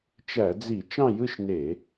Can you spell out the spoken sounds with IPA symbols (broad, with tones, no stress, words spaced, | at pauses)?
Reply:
t͡ʃæ˧˩˧d͡zi˧˩˧ t͡ʃɑ̃˥˧jɯ˥˧ʃne˧˩˧